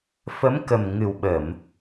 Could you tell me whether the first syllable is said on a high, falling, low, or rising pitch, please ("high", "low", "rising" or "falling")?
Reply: rising